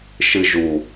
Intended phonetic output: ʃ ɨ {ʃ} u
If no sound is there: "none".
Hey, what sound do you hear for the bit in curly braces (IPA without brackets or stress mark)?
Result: ʒ